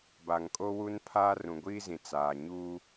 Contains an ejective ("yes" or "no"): yes